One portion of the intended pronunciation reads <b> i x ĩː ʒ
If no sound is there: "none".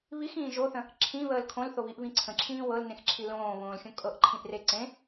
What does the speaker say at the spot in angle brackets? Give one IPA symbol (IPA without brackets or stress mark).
β